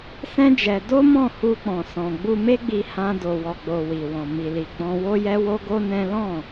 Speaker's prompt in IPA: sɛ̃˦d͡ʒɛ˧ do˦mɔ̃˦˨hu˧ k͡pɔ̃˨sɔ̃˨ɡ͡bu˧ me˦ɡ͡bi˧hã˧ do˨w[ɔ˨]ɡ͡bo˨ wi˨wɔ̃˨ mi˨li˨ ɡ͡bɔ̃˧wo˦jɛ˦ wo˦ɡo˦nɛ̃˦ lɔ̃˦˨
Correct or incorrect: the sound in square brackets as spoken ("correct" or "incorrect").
correct